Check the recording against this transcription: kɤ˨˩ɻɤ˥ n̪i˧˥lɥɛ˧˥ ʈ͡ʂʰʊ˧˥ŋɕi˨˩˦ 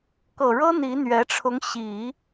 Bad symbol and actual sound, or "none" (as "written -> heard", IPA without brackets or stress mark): l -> n̪